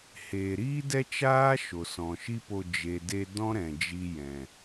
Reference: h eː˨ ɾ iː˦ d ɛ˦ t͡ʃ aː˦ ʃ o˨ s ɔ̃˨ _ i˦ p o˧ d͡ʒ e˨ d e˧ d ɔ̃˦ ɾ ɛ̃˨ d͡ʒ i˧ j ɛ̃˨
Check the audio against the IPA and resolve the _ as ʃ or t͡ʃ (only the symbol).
ʃ